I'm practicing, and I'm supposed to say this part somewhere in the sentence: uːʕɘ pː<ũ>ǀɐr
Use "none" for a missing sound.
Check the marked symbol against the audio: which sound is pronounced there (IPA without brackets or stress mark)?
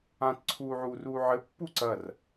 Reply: u